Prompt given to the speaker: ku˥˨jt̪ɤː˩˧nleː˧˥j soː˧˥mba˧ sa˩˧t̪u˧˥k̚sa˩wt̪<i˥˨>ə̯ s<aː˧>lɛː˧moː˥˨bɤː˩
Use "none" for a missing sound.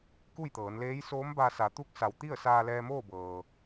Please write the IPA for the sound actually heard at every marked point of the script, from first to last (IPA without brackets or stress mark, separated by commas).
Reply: i˥˨, aː˧